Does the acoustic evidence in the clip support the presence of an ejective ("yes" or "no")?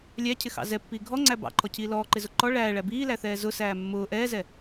no